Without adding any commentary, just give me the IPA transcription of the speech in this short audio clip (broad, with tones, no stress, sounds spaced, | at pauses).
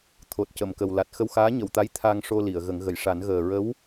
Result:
t̪ʰ o˨˩ t̚ c ə˨˩˨ m k ə˨˩ w l a˨˩ t̚ x ə˧ w x aː˧˥ ɲ ə˨˩˨ w t̪ a˧˥ j t̪ʰ a˧ ŋ ʂ o˧ l i˨˩˨ ə̯ ɣ ə˨˩˦ ŋ ɣ ə˨˩˨ j ʂ a˨˩˦ n ɣ əː˨˩ ɹ ə˧˥ w